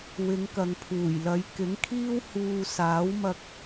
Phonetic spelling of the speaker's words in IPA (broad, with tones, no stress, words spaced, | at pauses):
wɪ˨˧ŋ kɐ˨ŋpʰuː˨˩jlɐ˨˧j kɪ˨˥ŋkʰiː˥w huː˧ saː˨˥wmɐ˧k̚